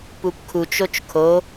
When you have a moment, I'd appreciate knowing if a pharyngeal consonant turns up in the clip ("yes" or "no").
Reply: no